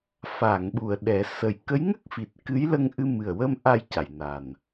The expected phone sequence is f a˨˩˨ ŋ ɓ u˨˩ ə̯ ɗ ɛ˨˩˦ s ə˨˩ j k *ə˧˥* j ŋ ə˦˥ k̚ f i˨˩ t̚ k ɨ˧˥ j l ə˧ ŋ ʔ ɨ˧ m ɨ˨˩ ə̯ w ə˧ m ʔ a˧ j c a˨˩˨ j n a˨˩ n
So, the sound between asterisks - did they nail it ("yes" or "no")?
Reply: yes